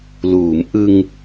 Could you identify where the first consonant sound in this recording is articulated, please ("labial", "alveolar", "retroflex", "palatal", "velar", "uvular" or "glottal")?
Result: alveolar